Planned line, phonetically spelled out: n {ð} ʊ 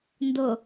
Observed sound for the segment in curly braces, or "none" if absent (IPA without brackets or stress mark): d